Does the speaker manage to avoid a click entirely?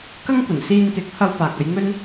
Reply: yes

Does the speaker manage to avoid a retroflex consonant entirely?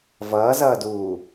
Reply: yes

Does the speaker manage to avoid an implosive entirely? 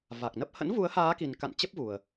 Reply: yes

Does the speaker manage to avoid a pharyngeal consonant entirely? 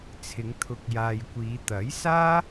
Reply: yes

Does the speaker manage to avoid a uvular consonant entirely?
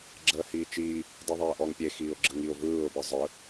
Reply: yes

